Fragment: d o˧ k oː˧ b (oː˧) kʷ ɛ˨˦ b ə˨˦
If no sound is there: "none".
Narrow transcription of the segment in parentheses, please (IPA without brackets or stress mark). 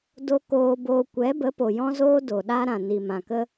oː˧